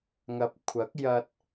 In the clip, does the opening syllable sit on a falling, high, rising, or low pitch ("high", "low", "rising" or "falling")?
rising